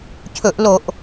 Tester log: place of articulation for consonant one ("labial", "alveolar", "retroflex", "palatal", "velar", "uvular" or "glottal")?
palatal